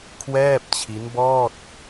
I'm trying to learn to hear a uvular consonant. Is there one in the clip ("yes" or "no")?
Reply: no